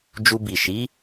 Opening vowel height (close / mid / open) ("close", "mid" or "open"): close